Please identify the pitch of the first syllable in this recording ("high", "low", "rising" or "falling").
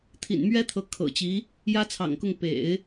low